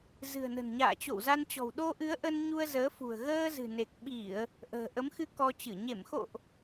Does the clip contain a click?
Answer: no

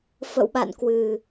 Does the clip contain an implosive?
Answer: yes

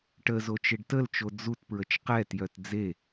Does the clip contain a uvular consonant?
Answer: yes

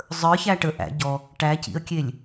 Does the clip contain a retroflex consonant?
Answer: yes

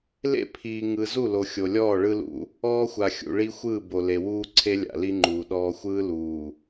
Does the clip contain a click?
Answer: yes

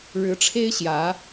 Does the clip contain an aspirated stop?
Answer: yes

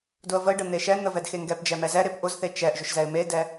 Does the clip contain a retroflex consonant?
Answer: yes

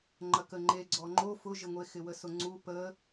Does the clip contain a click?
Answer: yes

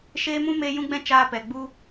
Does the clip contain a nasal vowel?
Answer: yes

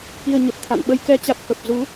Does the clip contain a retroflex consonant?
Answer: no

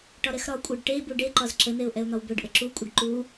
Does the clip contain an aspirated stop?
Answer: no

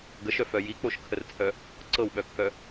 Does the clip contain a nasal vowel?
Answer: no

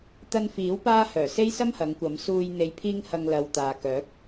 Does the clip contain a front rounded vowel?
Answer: yes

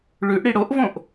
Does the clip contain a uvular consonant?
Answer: no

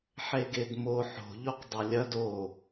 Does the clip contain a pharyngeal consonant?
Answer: yes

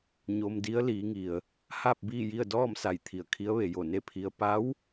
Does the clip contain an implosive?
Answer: no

